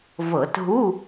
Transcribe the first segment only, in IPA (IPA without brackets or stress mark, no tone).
v